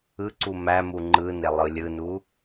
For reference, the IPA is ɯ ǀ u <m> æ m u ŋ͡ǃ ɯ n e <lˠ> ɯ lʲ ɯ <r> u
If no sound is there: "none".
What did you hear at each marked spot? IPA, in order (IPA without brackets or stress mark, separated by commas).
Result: m, lˠ, n